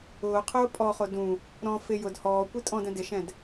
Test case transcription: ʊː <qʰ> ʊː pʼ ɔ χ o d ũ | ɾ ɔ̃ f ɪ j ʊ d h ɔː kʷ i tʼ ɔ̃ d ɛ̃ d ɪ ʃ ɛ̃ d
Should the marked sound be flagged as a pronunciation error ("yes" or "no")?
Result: no